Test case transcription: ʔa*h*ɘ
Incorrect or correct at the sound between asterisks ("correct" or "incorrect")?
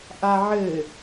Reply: incorrect